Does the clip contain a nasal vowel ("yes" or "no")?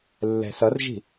no